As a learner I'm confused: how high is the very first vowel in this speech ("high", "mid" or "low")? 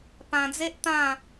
low